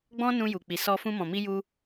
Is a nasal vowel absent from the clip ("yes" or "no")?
no